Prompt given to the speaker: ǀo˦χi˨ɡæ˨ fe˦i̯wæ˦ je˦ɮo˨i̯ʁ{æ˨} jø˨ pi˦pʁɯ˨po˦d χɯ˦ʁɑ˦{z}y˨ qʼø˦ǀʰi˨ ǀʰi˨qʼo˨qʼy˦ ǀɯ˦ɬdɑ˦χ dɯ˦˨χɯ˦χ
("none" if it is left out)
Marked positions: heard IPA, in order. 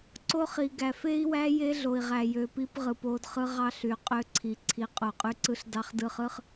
æ˨, ɬ

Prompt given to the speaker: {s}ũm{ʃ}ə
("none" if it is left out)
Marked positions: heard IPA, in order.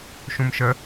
ʃ, ʃ

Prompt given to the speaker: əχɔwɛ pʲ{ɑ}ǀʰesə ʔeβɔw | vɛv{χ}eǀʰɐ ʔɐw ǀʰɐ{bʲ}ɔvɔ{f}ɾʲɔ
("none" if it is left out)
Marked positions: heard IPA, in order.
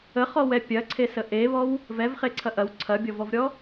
ɐ, χ, bʲ, v

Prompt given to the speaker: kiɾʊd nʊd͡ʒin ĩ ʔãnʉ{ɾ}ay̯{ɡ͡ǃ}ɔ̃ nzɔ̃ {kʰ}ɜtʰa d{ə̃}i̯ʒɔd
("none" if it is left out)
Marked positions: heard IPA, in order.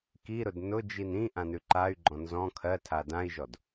ǃ, ɡ͡ǃ, kʰ, ã

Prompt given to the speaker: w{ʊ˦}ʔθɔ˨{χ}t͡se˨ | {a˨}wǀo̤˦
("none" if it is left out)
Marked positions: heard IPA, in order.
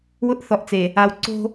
ʊ˦, ʔ, a˨

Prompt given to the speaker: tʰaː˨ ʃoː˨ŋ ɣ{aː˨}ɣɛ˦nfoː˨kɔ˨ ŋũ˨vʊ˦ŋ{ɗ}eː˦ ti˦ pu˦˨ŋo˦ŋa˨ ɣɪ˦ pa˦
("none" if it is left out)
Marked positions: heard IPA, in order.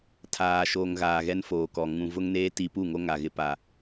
aː˨, n

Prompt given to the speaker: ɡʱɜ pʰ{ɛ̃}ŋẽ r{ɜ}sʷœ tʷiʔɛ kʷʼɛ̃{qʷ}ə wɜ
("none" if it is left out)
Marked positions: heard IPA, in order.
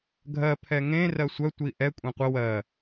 ɛ, ɜ, qʷ

